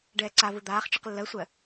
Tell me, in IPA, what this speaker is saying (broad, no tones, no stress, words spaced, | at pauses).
ɖɛːǀavɯ d̪aːχ t͡ʃɯqlːɜsʷɜ